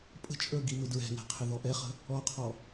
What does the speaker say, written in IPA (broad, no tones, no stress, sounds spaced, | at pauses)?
pʼ ə̤ t͡ʃʼ ə˞ ɡ i m ɪ d ɹ ɛ̤ n ɛ̤ qʰ ɪ ð ɔ ʔ ɛ χ ə̤ | ɔ qʰ ɔ